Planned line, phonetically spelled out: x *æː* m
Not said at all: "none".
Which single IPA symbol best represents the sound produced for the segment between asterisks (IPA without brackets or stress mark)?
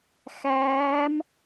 æː